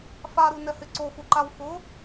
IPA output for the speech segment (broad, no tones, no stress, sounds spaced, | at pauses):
f a ɾ u n ɛ h ɪ ǀ o x u ǃ a w x ʊ